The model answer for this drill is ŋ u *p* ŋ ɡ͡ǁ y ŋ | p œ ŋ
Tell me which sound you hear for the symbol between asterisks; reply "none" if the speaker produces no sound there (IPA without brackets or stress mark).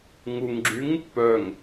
none